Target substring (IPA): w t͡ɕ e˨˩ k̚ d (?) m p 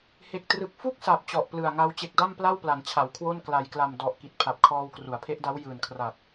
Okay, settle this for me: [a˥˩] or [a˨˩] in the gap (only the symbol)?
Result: a˥˩